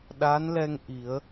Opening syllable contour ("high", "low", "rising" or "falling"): rising